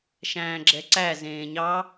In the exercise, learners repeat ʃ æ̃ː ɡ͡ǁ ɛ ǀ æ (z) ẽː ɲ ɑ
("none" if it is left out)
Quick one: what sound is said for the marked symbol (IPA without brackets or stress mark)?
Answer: z